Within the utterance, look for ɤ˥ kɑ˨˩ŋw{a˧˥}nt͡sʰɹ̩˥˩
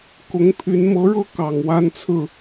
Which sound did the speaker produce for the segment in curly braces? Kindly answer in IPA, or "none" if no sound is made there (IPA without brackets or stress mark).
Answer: a˥